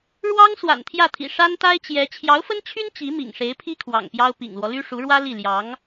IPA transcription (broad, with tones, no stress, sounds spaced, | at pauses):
ɻ w ɑ˥ ŋ s w a̰˨˩ n t̪ʰ j ä˥˩ t̪ʰ ḭ˨˩ ʂ a˥ n t̪ a˥ ɪ̯ t͡ɕ j ɛ˧˥ t͡ɕʰ j ɑ˧˥ ʊ̯ f ə˥ n t͡ɕʰ y˥ n t͡ɕ i˧˥ m ḭ˨˩ ŋ ʂ e˧˥ ɪ̯ pʰ i˥ kʰ w ɑ̰˨˩ ŋ p j ɑ˥ ʊ̯ p ḭ˨˩ ŋ l w ɔ˦ l y˥ ʂ u˧˥ ɻ w ä˥ l i˥˩ l j ɑ˧˥ ŋ